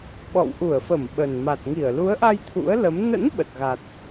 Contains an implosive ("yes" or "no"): yes